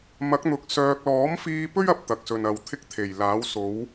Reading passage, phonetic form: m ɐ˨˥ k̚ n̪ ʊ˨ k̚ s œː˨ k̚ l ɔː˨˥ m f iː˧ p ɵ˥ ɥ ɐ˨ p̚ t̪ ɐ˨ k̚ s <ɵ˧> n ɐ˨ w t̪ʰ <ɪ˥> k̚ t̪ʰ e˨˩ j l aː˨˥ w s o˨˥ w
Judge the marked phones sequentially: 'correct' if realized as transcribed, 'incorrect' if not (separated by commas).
incorrect, correct